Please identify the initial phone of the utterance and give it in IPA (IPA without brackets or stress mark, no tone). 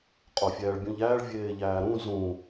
qʼ